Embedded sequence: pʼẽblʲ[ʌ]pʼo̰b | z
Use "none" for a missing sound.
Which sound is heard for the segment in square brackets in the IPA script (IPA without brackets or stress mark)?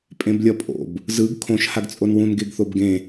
ʌ